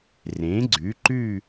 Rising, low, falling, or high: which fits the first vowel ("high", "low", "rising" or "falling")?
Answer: rising